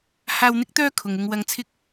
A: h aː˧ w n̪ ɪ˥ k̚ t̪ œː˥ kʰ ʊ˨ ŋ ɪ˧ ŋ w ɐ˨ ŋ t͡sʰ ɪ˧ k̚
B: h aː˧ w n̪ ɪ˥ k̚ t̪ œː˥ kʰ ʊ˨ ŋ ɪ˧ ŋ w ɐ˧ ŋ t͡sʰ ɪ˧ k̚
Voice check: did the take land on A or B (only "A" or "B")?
A